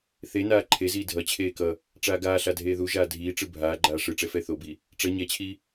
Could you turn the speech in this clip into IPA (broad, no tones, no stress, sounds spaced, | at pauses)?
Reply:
θ e n aː ǃʰ e z iː dʱ ʌ t͡ɕʰ eː k ʌ | ʈ͡ʂ aː ɡ aː ɬ a dʱ eː ð u ʒ aː dʱ iː ʈ͡ʂ ɯ bʱ aː ɡ͡ǃ aː ʂ ɯ ʈ͡ʂ ɛ f ɛ θ o b i | ʈ͡ʂ ʌ ɲ ɛ t͡ɕʰ i